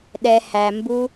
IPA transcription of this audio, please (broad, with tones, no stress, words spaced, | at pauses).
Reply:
ɗɛ˨ hæ˨mbu˧